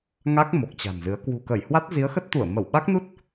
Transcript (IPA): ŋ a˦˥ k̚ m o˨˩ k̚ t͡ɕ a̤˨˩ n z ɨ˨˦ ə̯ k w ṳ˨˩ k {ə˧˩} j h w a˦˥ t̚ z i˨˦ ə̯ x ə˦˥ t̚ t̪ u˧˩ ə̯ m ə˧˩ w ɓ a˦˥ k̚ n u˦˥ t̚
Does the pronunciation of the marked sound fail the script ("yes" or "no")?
no